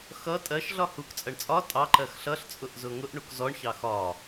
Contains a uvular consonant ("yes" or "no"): no